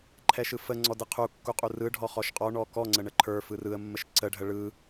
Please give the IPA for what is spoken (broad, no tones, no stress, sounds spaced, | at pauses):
ǃʰ ɛ ʃ ɯ f ə ŋ͡ǀ ɔ d ɯ qʰ u kː u qʼ u r ɯ ɖʱ ɔ χ ɔ ʃ qʼ ɔ ɳ ɔ k ɔ ŋ͡ǀ ə ɳ ə ǃʰ ə˞ f ɯ r ɯ ə̯ mː ə ʃ ǀ ə ɖʱ ə ɭ ɯ